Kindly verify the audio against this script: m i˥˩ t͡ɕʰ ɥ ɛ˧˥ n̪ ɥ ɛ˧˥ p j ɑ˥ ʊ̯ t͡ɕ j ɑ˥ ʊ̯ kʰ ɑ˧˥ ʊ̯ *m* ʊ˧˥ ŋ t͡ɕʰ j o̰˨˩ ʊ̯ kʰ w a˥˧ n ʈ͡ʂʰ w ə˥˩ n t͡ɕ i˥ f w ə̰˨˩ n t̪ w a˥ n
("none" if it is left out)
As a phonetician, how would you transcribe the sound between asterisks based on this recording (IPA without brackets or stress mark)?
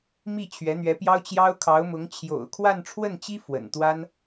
m